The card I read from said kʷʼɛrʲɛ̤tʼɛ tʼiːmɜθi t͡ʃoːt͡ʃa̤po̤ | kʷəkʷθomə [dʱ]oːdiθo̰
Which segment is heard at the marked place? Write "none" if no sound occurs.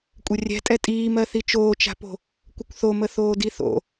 θ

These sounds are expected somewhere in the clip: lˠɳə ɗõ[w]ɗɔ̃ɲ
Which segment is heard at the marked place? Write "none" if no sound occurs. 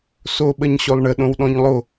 w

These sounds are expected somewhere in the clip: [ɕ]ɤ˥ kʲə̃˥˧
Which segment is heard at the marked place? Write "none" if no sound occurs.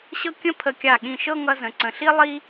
ɕ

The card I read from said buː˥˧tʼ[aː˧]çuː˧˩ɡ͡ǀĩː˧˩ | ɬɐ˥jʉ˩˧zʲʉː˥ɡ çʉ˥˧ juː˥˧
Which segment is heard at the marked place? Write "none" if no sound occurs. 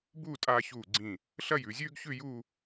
aː˧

